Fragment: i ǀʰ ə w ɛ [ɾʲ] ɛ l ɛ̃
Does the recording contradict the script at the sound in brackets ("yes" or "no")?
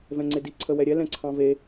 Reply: no